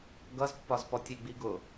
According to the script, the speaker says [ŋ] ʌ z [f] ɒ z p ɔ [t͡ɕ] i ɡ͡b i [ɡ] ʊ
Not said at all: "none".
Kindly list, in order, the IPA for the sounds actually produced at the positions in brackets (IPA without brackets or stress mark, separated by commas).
ɡ, pː, tʲ, ɡ